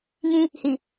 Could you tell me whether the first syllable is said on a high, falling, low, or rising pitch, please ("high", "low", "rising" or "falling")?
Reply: high